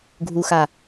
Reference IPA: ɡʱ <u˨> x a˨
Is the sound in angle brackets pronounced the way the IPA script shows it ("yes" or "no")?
yes